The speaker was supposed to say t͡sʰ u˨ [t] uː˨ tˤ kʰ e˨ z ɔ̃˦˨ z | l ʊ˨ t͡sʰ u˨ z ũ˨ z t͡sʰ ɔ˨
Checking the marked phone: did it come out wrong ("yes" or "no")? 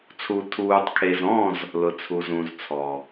yes